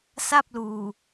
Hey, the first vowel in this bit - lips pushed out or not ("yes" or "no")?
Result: no